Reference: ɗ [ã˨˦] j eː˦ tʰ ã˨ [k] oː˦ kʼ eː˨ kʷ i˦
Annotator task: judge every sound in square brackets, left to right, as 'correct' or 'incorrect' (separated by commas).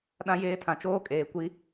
incorrect, incorrect